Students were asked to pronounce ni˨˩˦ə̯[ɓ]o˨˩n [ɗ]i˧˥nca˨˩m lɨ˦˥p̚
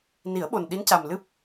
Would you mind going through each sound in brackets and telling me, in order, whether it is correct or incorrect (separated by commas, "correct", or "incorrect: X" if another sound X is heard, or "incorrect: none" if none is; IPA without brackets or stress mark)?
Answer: correct, correct